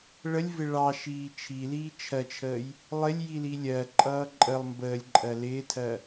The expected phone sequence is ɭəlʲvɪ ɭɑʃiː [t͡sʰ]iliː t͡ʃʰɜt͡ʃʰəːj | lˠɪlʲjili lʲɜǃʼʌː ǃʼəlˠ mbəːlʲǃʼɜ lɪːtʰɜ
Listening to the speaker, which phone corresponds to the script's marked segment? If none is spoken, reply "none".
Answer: t͡ʃʰ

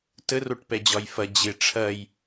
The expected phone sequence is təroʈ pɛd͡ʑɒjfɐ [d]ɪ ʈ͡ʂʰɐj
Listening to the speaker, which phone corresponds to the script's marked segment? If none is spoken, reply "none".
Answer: d͡ʑ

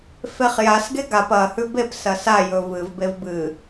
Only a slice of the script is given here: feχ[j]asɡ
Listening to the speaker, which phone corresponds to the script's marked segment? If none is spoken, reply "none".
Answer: j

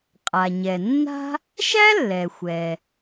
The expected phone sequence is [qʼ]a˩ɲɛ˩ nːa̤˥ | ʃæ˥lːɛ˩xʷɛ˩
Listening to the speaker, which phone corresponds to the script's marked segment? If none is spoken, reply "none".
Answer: qʼ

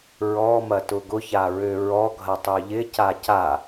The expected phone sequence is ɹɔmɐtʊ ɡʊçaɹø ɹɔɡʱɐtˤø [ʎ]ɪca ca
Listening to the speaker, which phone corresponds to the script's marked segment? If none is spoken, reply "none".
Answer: ʎ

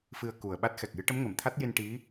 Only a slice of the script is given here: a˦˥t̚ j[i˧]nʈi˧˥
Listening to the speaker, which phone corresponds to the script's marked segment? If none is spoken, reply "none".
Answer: i˧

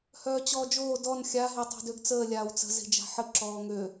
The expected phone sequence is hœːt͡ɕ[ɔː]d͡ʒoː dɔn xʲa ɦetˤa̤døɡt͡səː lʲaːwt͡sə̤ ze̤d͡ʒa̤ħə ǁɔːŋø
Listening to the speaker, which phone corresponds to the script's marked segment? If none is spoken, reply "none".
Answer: ɔː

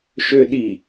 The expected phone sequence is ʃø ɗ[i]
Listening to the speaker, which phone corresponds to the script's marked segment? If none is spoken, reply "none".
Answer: i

